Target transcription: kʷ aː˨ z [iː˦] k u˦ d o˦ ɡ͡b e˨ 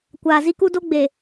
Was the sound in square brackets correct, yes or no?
no